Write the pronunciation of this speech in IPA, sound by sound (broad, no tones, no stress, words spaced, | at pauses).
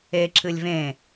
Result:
e ǁɨlʲvẽ